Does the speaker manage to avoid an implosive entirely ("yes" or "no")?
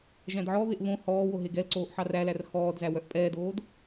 yes